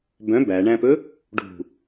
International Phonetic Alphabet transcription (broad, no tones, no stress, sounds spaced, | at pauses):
b œ̃ b æ ɳ æ̃ p ɵ | ɖ ṳ